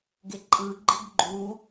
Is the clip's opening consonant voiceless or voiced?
voiced